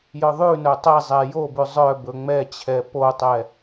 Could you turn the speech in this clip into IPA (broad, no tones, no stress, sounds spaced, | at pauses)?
j œ ðˤ ʉ n œ tˤ ɛ zˤ ɛ j o b ʉ zˤ œ b ɵ ŋ͡m ɛ t͡ɕʰ ɛ p o tˤ ɛ